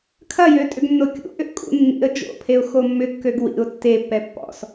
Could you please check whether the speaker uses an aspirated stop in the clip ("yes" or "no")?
yes